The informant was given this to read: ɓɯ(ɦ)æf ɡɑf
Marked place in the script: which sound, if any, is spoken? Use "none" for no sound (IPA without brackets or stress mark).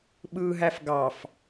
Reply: ɦ